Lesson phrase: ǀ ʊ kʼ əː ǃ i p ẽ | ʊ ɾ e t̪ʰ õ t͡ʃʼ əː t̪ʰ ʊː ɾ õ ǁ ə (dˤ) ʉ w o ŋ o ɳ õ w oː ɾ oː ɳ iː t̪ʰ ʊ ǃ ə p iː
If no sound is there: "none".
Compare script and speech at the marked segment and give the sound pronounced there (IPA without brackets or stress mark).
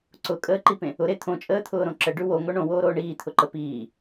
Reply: ɖ